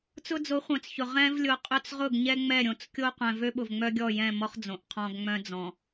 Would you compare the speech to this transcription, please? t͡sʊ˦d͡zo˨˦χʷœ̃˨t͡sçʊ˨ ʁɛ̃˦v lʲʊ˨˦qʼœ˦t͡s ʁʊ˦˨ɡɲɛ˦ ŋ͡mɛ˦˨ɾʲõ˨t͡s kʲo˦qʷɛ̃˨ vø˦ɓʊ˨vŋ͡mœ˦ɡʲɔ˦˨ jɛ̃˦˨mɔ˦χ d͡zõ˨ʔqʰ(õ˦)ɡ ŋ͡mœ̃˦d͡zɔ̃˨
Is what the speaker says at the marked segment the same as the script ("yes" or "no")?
no